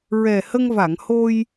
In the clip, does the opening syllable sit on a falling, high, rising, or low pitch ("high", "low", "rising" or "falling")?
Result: low